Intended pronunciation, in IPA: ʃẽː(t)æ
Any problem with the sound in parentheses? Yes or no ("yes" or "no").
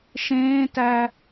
no